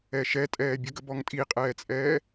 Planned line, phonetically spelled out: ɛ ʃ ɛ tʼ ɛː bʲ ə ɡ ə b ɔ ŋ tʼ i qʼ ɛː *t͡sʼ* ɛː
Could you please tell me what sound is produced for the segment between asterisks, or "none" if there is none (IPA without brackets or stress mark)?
t͡sʼ